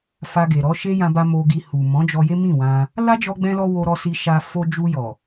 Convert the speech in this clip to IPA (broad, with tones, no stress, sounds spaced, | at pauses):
f a˧ ɡ e˨ ɾ ɔ˨˦ ʃ e˦ j ã˧ b a˧ m o˧ ɡ i˧ h u˨ m ɔ̃˨˦ d͡ʒ ɔ˧ j e˦ m ĩ˦˨ w ã˧ | l a˦ d͡ʒ ɔ˧ ɡ͡b ɛ̃˦ l ɔ˦ w o˧ ɾ ɔ˧ s i˧ ʃ a˧ f o˧ d͡ʒ u˧ j ɔ˨